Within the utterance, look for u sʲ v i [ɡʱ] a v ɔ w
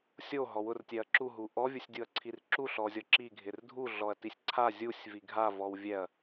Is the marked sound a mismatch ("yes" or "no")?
no